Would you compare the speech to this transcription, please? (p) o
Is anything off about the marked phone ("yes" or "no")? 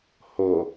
yes